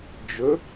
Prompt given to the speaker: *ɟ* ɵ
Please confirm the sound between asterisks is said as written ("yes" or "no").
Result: no